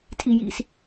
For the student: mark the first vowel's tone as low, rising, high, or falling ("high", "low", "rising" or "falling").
high